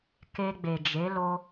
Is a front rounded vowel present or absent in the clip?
absent